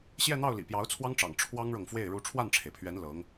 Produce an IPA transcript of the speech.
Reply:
ɕjɛ˥˧n̪ɑ˥˩ʊ̯ lḭ˨˩pjɑ˧˥ʊ̯t͡sʰwɑ˥ŋʈ͡ʂɑ̰˨˩ŋ ʈ͡ʂʰwɑ˥ŋɻɤ˨ŋfwe˥˩ɪ̯ ɻu˧˥ʈ͡ʂʰwa˥˩nʈ͡ʂʰe˩ɪ̯pʰɥɛ˧˥n lɤ˧˥ŋ

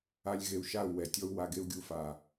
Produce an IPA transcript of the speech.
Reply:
a˧lʲ ɣe˨u̯ʃa˦˨u̯wɛ˨tʲɔ˦u̯ wa˨ɡe˦u̯ɡʲu˧fa˨

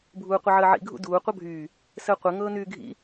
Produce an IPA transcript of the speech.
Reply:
bʱuːqʷəʕəːʕḭ ɡʱṵduː qʷʌbʱyː | səːqʷɘ ŋɤːnyːɡʱḭ

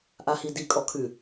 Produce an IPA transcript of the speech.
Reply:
ʔahidi kʼɔkʰʉ

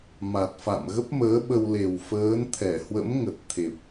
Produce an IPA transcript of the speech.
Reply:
ma˨˩t̚fa̰˧˨mɣə˦˥p̚məː˨˦ ɓə˧wle˨˩w fəː˨˦nt̪ʰɛ˧˩ hwə̰˧˥mŋə˨˩t̚ t̪ʰe˨˩p̚

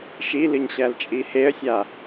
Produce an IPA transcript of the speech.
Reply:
ʃilɨɲɕælt͡ʃʼi heə̯sʲa

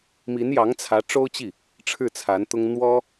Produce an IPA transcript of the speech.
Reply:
mi˧˥njɑ˧˥ŋ t͡sʰä˧˥ʈ͡ʂo˥ʊ̯t͡ɕi˥˩ | ʈ͡ʂʰɻ̩˥˩t͡sʰa˧˥nt̪ʊ˥ŋ n̪wɔ˥

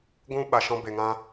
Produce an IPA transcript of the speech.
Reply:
ɡʷũ˧ ɓa˨ʃɔ̃˧ be˨ŋã˧

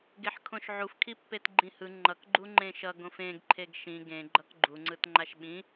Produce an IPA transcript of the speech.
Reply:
ɡeħkʰõʃʕufkʰi pːetɡ͡ǃĩhɯ ŋ͡ǃʌk ɡ͡ǃuŋ͡ǃẽʃʌ ɡõfẽɡǃʰeɡ ʃĩ ɡẽ ɡ͡ǃʌkɡ͡ǃuŋ͡ǀɯtŋ͡ǃaʃ ɓĩ

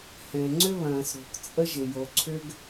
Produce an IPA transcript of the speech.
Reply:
hɛ̃˩ ŋ͡ǀʏ˥βɐ̃ː˩sɾo̤˩k t͡sʼə˥ʒ ɪ˩jo˩ǀʰʏ˥ɡ

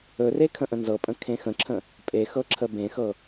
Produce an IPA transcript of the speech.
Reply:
ɵre kʰə̃ʔə̃nzɤpʼə̃ kʰẽxə̃ǁʰə̃ | pʼe xɤǁʰəbẽxɤ

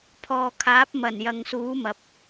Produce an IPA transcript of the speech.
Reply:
pʰɔː˨kʰaː˨˥p̚mɐ˨˩n jɐ˨ŋsuː˨˥mɐ˨p̚

